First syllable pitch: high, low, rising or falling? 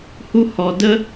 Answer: high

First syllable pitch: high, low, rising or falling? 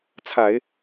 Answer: low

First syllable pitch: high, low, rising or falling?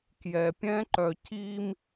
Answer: low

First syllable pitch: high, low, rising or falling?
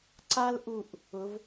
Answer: high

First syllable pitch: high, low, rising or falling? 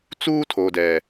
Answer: high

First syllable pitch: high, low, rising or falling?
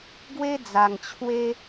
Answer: high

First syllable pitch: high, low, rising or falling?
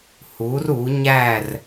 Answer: rising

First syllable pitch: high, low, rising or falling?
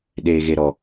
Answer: low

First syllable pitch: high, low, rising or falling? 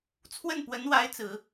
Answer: falling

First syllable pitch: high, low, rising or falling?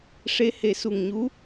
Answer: rising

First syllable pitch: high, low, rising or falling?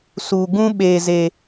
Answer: low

